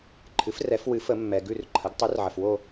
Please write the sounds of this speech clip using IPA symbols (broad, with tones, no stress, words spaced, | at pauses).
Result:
ǃʰɨ˩˥frɛ˨˩˦f wɨ˩˥fə˨˩˦mːɛ˩ ɡʉ˦˨rǃʰə˩˥ɡ tˤʉ˩˥rʕə˩fwo˦˨